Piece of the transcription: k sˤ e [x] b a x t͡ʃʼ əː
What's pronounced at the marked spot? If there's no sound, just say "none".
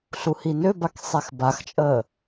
x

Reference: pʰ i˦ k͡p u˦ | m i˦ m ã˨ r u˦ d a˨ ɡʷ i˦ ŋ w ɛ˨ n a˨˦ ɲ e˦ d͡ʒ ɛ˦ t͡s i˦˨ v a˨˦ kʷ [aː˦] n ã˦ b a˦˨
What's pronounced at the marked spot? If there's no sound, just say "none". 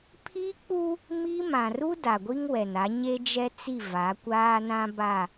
aː˦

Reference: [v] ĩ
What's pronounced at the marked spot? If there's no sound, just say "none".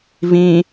v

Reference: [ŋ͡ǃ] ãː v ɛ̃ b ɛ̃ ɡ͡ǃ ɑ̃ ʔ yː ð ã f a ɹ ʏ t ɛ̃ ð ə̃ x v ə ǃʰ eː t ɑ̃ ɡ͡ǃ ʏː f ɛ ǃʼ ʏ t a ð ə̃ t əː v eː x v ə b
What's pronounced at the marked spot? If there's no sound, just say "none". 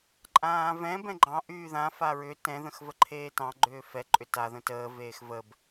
ǃʼ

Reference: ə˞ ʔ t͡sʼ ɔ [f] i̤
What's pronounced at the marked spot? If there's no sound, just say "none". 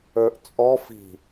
f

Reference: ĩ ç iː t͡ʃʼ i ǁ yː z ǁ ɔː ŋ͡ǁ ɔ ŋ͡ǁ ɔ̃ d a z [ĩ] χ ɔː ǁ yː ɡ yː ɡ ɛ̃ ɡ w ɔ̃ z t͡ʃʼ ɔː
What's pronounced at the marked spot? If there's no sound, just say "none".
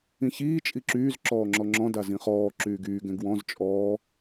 ĩ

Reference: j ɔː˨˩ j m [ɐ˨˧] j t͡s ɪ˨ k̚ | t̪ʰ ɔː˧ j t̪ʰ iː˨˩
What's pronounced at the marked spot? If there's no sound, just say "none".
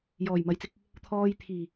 ɐ˨˧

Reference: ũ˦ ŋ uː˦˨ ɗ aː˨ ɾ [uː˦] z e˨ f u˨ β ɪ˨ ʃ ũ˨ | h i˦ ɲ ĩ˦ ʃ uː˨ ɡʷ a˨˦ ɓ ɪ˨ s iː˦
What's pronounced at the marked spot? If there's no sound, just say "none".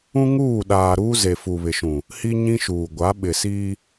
uː˦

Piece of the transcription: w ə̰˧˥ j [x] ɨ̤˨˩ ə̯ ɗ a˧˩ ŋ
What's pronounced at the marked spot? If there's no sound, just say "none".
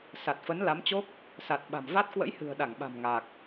h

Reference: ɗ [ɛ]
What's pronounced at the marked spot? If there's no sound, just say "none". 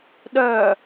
œ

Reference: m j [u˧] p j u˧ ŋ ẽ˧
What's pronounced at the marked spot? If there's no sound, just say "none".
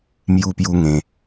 u˧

